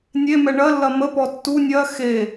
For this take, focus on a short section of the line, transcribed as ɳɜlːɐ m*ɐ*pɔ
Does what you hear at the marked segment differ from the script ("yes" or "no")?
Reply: yes